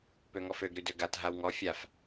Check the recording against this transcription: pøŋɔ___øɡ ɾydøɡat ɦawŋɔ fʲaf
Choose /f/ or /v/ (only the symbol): f